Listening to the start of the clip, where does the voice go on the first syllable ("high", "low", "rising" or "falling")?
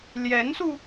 rising